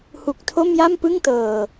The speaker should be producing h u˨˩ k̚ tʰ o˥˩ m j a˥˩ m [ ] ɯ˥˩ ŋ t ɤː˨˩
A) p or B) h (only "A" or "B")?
A